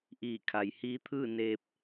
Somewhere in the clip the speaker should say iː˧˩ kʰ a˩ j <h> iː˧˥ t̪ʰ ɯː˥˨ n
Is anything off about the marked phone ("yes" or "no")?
no